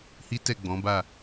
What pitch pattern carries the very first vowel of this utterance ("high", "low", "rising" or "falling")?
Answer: high